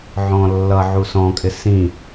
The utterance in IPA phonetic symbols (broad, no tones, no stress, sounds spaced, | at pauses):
ʕ ɔ̃ lː ʌ ʕ u s ɔ̃ kʼ ɪ s ĩ